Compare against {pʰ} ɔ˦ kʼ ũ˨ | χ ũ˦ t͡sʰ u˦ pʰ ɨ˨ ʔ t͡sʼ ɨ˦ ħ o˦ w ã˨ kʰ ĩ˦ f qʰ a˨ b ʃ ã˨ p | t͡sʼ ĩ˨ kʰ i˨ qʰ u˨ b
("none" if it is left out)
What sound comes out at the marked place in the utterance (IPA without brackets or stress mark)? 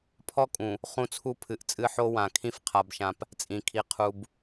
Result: pʰ